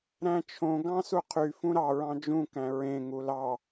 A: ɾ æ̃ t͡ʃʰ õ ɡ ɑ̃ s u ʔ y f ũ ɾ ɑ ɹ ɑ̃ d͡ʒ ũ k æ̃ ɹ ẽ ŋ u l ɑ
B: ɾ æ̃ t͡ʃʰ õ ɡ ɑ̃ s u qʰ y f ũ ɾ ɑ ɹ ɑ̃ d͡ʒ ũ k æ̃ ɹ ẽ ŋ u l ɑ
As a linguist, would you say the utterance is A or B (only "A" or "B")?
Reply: B